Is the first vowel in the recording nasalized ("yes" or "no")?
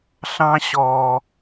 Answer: yes